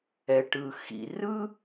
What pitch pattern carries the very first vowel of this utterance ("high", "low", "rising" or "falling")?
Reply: low